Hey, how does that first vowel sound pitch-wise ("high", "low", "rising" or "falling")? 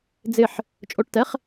falling